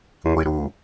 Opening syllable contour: low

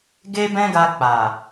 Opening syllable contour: high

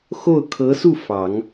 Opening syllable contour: falling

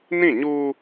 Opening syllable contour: falling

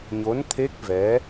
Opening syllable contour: rising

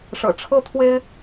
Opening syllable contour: low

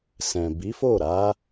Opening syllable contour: low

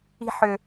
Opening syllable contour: high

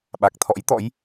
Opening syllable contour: low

